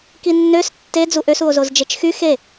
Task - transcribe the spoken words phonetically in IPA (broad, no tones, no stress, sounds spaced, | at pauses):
k i nː ø s tː e d͡z u ʔ ø s u o̯ z o z d͡ʒ e t͡ʃ x y x e